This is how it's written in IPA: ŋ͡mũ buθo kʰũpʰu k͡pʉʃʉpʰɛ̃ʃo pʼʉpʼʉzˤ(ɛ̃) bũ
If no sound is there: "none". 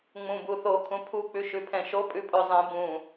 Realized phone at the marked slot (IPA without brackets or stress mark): ɛ̃